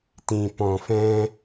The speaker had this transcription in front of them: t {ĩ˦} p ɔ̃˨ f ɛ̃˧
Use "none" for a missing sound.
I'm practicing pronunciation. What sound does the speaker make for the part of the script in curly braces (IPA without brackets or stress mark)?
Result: ĩ˨